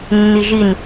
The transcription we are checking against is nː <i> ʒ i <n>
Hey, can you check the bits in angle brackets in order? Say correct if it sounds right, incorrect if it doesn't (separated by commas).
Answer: correct, correct